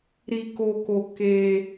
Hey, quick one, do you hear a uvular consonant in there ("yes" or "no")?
no